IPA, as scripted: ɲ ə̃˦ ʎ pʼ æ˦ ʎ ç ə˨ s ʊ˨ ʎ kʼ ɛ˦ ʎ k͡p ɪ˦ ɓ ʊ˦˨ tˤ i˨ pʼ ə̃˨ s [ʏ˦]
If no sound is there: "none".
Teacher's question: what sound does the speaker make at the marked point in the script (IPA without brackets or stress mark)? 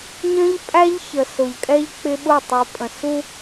u˦